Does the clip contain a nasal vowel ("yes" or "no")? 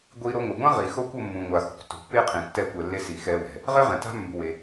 yes